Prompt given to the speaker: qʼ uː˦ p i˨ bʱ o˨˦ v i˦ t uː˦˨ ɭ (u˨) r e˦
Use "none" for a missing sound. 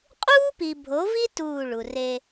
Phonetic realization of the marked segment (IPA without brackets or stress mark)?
u˨